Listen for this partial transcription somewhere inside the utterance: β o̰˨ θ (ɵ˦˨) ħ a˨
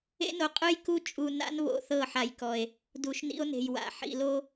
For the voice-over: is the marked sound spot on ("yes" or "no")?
no